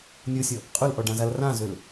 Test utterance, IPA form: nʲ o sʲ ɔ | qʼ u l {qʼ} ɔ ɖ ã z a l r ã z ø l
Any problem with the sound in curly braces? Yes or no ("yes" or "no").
yes